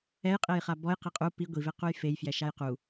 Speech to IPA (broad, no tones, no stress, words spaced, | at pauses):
ɛjqʼejχa bɔj qeqʼu pi ɡʷivequj fejfjɛ ʃajqu